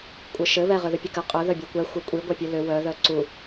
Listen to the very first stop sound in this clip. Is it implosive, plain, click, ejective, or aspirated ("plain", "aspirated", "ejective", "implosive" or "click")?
ejective